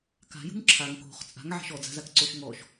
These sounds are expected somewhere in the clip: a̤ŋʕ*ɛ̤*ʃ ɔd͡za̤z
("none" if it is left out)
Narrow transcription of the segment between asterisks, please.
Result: ɛ̤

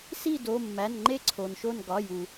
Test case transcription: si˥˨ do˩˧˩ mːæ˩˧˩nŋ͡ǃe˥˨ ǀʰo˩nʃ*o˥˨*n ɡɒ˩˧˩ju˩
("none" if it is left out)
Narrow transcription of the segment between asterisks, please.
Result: o˥˨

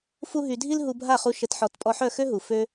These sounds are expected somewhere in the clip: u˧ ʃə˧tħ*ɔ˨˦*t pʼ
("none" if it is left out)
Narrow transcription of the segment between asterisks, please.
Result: ɔ˨˦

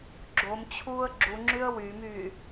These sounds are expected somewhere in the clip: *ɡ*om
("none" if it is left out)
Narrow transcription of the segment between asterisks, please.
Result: ɡ͡ǁ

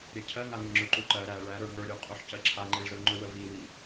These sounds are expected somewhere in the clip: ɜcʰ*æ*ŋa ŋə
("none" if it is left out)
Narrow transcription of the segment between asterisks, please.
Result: ɜ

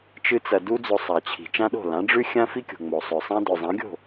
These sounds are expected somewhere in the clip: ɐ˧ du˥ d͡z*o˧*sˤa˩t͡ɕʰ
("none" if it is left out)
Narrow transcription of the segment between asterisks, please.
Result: o˧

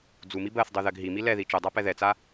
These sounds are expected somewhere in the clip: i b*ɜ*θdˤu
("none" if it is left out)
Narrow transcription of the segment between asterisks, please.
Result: ɜ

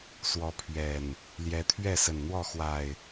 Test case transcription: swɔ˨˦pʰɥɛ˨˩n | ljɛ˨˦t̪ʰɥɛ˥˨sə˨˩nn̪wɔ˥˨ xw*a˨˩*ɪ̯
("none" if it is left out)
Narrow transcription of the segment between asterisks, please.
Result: a˨˩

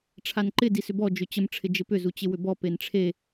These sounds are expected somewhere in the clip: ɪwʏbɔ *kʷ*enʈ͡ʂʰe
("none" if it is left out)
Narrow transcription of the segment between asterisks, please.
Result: p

